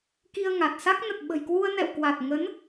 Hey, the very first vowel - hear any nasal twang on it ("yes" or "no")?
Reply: no